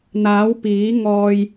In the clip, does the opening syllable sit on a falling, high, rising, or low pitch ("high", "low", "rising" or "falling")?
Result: rising